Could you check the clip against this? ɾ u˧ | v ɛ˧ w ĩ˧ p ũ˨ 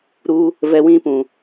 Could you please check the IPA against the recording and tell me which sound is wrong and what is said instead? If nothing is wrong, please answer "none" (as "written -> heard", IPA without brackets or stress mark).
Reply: none